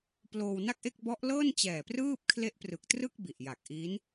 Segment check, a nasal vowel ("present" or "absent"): absent